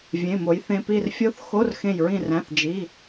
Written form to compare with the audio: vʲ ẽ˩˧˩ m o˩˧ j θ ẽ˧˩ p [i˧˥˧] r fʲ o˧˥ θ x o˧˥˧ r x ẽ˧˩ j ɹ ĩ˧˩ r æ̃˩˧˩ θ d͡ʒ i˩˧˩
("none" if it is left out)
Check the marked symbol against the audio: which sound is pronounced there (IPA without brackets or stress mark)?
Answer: i˧˩